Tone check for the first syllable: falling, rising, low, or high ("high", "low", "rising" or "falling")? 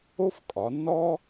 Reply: high